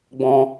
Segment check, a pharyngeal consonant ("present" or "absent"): absent